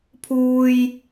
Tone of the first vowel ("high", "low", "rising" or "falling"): low